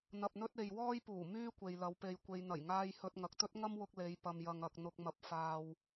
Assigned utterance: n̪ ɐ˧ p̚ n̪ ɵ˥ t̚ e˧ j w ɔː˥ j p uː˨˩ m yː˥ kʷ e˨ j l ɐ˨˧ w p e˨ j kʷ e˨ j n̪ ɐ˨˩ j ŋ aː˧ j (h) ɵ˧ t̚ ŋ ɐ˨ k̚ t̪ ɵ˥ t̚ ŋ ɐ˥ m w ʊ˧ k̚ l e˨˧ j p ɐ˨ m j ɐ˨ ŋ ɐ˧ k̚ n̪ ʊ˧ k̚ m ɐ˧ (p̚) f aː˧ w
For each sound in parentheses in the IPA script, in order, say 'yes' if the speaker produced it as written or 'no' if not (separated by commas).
yes, yes